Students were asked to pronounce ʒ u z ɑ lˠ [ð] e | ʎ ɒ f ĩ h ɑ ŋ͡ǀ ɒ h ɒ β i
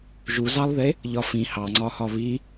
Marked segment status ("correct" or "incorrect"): correct